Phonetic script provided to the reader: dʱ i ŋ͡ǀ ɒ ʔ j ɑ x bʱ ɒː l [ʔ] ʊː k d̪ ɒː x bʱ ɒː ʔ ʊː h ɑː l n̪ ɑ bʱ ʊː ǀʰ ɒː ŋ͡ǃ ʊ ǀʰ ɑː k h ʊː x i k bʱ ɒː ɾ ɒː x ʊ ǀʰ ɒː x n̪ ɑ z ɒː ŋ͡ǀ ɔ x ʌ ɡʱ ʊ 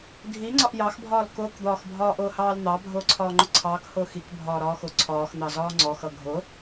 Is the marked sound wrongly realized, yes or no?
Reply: yes